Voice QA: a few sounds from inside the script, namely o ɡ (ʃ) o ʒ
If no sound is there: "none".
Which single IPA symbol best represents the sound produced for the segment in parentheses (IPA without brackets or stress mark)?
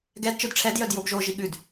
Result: ʒ